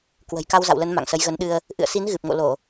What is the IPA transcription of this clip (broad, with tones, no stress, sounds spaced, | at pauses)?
k w ə̤˨˩ j k a˧ w z a̰˧˨ w l ə˨˦ n m a̰˧˨ ŋ s ə˨˦ j ɣ ə˨˦ n ɗ ɨ˧ ə̯ | ʔ ɨ̰˧˨ ə̯ s i˨˦ n ɣ ɨ˨˩ p̚ ŋ o̰˧˨ l o˧˩˨